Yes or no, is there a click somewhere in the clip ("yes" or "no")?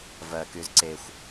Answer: yes